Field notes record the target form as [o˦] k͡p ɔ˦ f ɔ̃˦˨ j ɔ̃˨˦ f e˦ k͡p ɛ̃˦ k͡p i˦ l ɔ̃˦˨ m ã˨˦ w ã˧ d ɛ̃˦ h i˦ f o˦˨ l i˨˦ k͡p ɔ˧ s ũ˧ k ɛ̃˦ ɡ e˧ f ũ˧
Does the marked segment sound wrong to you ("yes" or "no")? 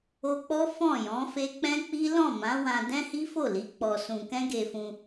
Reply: yes